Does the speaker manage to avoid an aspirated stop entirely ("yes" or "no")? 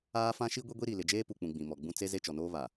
yes